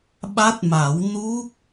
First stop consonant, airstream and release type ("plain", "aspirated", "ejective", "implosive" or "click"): implosive